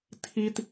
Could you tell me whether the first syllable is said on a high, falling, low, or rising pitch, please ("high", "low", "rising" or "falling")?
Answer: high